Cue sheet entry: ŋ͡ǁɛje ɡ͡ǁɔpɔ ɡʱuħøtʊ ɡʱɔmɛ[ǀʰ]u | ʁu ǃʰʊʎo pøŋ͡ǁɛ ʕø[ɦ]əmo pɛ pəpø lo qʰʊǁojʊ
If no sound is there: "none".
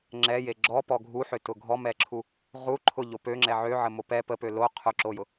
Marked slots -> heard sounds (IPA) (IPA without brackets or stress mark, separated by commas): ǁʰ, ʕ